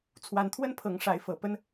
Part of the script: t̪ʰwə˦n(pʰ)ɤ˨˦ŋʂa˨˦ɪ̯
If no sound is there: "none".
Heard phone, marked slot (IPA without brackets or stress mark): pʰ